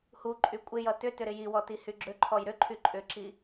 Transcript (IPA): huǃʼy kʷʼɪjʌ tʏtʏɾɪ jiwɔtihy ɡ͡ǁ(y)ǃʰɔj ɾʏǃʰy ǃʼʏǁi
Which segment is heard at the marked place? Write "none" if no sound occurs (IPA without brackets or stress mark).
ʏ